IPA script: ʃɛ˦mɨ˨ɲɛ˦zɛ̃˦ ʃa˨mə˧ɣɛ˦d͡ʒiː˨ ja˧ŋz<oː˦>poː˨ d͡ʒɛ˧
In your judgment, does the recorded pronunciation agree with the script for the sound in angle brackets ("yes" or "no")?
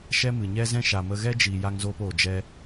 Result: no